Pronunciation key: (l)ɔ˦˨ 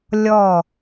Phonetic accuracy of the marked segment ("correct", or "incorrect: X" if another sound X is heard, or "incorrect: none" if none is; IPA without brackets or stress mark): incorrect: lʲ